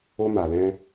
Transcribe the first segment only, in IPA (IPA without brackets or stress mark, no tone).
o